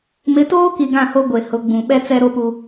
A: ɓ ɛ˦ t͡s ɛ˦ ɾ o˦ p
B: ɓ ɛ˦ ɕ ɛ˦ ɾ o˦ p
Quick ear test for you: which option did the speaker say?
A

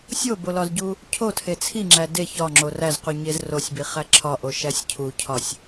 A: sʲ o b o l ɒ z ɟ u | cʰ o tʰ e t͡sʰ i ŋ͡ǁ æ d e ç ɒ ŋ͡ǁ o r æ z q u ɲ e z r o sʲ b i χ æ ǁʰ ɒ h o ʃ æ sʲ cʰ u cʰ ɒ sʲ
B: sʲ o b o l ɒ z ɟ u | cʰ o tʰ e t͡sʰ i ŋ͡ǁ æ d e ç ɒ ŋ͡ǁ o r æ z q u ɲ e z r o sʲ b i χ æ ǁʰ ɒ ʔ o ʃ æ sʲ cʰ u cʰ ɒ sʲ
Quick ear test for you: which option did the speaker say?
B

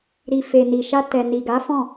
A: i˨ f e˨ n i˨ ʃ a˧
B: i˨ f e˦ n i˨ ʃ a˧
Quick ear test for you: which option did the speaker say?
A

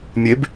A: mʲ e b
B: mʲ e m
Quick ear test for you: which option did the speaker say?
A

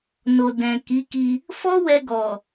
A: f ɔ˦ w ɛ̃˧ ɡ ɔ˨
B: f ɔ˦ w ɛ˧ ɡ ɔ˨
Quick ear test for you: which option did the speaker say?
B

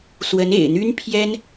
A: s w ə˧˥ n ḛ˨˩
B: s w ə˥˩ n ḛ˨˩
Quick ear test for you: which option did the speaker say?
A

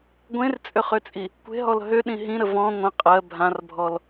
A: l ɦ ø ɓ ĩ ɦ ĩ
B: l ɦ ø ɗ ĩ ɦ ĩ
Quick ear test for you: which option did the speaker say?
B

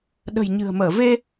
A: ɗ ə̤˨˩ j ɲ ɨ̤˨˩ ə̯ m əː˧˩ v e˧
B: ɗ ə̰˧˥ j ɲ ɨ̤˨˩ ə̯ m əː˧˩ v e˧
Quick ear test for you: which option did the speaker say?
A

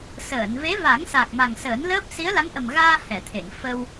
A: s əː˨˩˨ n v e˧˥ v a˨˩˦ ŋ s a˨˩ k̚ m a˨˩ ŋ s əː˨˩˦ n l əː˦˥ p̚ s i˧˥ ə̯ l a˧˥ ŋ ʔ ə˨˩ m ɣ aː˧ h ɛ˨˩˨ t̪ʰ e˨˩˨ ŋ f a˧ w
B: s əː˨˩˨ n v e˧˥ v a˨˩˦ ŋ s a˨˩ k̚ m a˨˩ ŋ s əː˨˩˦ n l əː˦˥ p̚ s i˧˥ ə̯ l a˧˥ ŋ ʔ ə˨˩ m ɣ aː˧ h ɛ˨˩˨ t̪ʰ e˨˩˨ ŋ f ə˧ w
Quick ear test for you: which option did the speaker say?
B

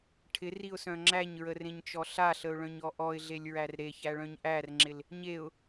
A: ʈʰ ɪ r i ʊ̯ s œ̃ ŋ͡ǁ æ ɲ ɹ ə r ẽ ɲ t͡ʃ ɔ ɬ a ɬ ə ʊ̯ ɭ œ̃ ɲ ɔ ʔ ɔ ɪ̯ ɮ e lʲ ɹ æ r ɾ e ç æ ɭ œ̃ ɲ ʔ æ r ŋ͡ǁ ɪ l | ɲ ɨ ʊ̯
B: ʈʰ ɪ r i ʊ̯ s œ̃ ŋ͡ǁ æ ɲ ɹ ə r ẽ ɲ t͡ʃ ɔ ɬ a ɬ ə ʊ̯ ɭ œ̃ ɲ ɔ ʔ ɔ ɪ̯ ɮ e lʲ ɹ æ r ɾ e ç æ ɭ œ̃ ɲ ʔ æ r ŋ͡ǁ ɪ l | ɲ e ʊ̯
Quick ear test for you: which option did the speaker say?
B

